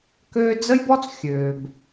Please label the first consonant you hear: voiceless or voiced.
voiceless